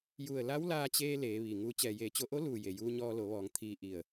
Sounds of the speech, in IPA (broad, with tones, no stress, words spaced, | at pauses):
ju˧˩ə̯la˧˥wlaː˧t͡ɕeː˧ leː˩˧ʋi˩ŋu˧ t͡ɕɛː˩jeː˧˩t͡ɕo˧ʔo˧˥ luː˧˩je˩juː˧ ɲɔː˧lo˩˧ʋɔː˩˧ŋ t̪ʰiː˧ʔi˧˩ə̯